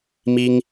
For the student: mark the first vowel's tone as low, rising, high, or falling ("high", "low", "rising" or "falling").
high